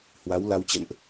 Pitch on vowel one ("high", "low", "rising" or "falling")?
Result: rising